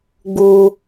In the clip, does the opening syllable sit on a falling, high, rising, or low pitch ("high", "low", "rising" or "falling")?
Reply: high